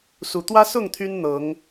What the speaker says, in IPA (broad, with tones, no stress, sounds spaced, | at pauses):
s u˨˩ t̪ w ä˦ s ʊ˥˨ ŋ t̪ʰ y˦ n n̪ ɤ˨˦ ŋ